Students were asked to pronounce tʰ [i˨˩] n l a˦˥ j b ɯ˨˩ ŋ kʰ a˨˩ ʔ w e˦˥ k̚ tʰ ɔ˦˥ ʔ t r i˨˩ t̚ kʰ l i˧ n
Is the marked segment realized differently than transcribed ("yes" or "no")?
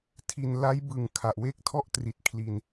no